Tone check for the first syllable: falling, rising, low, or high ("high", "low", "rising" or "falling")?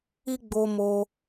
high